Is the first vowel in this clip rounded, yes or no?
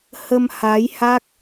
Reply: no